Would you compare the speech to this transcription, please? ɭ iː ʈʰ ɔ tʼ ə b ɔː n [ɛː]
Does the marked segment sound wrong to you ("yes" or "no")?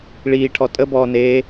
yes